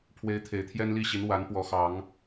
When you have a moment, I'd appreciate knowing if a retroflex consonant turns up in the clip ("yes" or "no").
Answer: no